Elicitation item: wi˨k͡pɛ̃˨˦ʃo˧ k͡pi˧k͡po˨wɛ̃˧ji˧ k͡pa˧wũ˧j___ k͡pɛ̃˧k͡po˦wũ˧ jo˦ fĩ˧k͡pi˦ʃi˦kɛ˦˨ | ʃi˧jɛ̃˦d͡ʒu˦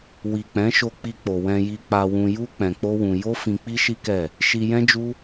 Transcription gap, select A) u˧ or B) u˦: B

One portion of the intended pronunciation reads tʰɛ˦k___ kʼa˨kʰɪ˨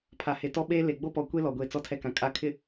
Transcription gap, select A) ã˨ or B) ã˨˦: A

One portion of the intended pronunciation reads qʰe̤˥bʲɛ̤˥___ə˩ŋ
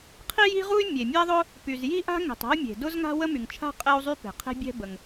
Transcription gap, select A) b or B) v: A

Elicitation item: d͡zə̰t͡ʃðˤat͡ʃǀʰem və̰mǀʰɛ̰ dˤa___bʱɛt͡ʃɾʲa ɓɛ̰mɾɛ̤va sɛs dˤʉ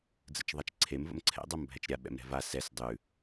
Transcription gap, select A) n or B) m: B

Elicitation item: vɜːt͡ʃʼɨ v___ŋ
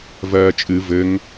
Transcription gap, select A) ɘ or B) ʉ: A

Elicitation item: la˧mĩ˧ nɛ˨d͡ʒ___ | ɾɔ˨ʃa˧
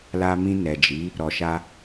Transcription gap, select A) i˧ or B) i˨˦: B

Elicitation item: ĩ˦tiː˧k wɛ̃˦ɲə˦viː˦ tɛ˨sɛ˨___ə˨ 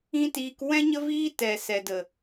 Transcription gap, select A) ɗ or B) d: B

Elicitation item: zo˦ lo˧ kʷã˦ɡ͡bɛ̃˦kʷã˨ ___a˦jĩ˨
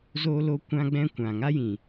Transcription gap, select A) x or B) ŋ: B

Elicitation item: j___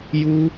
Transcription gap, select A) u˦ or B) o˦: A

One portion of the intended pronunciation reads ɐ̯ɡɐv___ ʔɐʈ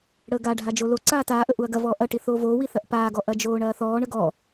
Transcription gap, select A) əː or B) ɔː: B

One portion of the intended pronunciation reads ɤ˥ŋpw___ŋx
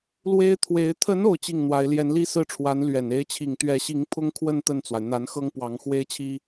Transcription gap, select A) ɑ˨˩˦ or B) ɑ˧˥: B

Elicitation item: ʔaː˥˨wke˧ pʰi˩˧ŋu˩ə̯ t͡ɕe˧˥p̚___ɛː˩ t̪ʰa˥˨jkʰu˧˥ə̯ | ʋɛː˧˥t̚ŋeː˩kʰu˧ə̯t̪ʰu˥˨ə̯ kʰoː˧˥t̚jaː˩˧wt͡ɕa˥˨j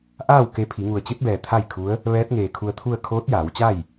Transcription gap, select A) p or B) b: B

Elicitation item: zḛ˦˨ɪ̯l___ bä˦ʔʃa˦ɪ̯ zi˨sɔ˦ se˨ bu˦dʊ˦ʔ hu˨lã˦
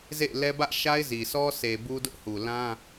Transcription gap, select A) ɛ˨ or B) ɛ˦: B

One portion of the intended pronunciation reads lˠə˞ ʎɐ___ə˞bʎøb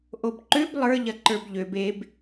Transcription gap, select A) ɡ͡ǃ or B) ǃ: B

